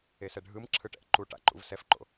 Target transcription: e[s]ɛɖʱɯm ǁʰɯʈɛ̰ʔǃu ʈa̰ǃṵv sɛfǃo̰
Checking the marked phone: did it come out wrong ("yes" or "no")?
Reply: no